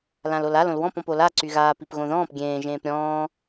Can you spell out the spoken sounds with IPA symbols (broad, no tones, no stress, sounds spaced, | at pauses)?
l ã l o l a l õ l w ɔ̃ p ɔ̃ p o l a ǀ y ɣ aː p i p ɣ õ ð ɔ̃ː p ɡʲ ẽː ʒ ẽː p ɾʲ ɔ̃ː